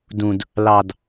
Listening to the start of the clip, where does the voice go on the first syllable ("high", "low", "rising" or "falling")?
low